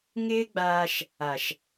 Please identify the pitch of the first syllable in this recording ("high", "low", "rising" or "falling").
high